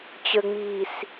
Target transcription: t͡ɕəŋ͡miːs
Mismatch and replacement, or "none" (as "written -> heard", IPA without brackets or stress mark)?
none